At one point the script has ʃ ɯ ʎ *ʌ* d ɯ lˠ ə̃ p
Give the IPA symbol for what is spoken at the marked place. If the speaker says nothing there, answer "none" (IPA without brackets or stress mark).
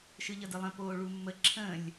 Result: ʌ